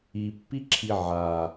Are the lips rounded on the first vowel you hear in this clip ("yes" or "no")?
no